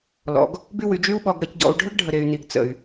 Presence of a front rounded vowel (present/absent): present